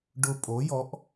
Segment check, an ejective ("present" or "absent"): present